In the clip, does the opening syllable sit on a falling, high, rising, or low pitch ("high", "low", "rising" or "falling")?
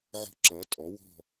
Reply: falling